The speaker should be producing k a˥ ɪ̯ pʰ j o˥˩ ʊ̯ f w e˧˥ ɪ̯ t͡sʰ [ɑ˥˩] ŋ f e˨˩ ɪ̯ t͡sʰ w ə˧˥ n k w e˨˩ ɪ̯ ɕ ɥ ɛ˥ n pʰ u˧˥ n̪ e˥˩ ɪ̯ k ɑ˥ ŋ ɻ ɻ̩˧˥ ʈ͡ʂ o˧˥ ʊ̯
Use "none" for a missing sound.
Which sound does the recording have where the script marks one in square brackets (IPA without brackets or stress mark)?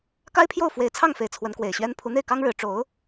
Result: ɑ˥˩